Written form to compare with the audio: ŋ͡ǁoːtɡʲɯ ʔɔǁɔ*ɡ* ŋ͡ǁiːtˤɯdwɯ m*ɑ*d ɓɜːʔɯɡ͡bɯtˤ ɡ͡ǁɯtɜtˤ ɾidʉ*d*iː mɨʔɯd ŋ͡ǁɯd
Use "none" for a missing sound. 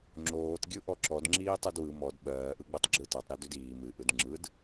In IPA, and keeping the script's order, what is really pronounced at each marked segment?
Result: d, ɔ, d

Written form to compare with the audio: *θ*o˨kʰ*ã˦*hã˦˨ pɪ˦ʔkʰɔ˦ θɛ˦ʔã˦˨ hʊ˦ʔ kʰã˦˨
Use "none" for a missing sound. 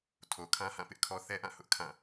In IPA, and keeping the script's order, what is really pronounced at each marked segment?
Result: tʰ, ã˦

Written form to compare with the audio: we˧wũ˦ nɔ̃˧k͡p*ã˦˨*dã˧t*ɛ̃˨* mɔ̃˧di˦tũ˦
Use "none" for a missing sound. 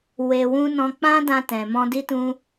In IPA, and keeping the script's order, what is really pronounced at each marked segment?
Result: ã˦, ɛ̃˨

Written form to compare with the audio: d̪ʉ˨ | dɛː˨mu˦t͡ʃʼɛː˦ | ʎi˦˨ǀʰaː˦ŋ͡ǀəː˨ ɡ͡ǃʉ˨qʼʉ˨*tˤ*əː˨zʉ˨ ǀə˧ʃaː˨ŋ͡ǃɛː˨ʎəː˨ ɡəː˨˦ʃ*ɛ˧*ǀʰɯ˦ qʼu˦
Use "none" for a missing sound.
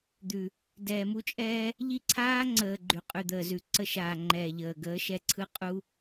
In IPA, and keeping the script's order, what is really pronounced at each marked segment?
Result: d̪, ɛ˧

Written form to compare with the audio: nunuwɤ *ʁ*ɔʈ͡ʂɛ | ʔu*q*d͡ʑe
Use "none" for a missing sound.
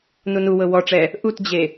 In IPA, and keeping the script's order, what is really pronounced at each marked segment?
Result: w, t

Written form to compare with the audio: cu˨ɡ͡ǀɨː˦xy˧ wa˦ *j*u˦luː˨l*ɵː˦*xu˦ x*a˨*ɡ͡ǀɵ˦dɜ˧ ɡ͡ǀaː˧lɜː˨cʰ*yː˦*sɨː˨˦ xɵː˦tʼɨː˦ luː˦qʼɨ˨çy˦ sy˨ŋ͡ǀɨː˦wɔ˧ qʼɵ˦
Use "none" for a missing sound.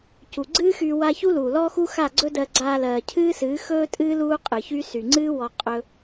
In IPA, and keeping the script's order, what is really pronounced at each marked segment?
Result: ç, ɔː˦, a˦˨, ɨː˦

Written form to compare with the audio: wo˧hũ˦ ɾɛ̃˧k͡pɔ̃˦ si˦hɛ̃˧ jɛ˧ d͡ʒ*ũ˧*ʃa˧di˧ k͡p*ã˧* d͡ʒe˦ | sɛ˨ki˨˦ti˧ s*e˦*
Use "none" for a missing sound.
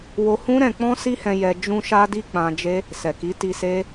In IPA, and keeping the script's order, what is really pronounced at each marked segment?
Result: ũ˧, ã˧, e˦

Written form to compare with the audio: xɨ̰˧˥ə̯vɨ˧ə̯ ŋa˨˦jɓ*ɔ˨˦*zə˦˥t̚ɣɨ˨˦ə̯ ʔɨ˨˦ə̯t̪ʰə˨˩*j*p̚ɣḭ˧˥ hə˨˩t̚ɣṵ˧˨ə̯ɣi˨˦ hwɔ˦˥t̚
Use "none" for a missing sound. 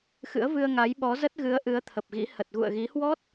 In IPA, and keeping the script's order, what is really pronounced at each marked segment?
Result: ɔ˨˦, none

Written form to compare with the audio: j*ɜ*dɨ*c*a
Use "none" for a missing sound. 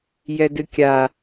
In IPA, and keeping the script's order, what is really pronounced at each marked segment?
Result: ɛ, kʲ

